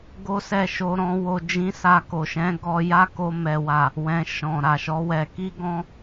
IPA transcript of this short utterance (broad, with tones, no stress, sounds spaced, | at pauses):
ɡ o˦ s ɛ˦˨ ʃ o˧ ɾ ɔ̃˦ w o˧ d͡ʒ ĩ˧ s a˧ k o˨ ʃ ɛ̃˨˦ ɡ ɔ˦ j a˦ k o˧ m ɛ˨ w a˨ | w ɛ̃˨ ʃ ɔ̃˨ ɾ a˨ ʃ ɔ˨˦ w ɛ˧ k i˦ ɡ ɔ̃˧